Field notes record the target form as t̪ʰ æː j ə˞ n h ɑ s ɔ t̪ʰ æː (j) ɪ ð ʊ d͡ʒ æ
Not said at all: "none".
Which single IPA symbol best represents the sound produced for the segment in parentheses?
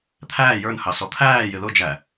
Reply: j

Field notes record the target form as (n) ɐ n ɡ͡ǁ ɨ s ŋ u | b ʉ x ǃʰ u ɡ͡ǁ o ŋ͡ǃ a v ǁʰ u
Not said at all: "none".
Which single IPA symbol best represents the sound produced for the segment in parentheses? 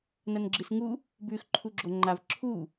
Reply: n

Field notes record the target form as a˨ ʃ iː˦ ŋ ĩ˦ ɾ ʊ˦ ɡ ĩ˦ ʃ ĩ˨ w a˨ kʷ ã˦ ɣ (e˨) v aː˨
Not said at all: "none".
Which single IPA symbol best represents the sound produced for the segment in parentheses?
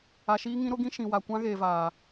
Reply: e˨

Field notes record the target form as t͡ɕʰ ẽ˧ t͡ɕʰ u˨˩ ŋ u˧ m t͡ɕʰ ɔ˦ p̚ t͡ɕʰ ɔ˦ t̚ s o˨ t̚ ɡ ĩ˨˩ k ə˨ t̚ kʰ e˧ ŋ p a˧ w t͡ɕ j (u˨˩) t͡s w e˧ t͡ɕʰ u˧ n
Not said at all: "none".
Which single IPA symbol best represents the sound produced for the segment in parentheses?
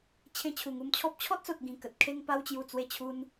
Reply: u˨˩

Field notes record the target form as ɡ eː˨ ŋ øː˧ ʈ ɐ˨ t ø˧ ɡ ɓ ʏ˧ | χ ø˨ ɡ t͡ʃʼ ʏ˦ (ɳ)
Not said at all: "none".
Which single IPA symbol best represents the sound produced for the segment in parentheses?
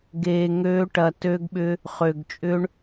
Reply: ɳ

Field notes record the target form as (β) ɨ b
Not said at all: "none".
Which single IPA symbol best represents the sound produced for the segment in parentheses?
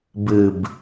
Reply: b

